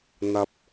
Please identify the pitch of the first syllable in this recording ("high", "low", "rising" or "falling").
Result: low